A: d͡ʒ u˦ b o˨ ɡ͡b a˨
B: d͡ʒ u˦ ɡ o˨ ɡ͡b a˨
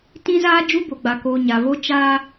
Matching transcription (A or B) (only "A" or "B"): A